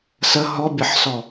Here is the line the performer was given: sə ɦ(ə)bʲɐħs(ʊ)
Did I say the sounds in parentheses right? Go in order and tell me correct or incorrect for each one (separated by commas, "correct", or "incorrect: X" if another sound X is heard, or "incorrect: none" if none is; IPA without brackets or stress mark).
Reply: incorrect: ɔ, incorrect: ɔ